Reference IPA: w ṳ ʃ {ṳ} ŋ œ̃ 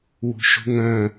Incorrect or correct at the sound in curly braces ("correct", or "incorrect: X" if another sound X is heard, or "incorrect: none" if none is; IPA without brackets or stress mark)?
correct